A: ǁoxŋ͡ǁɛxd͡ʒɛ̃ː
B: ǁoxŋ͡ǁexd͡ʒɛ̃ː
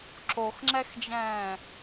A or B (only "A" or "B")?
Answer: A